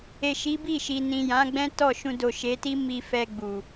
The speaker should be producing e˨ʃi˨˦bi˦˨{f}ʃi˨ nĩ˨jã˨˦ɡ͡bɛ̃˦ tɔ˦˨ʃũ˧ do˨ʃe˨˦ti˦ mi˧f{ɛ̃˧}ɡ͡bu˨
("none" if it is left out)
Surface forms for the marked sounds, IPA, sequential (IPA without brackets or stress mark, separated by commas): none, ɛ˧